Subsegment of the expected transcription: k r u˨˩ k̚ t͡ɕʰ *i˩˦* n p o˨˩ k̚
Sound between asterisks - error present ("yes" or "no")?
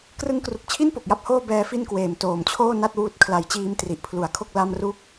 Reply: yes